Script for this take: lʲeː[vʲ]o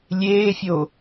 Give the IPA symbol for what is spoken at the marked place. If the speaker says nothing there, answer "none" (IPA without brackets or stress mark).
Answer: fʲ